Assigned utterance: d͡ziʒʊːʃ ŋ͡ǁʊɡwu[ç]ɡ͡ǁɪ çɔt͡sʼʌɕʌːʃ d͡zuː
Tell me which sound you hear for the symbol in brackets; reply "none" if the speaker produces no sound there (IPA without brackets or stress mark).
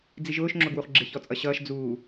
χ